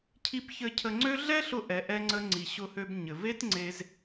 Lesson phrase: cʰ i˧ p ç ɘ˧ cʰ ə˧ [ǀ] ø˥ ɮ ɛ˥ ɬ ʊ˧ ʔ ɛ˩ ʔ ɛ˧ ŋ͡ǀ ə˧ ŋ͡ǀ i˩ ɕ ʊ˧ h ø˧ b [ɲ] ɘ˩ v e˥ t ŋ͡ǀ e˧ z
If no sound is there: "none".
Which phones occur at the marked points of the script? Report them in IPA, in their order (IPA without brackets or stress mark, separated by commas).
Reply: ŋ͡ǀ, ɲ